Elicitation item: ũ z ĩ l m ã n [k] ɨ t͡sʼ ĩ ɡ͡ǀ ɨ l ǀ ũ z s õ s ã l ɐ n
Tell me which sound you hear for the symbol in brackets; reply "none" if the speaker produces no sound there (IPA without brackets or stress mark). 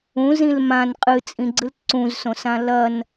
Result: qʼ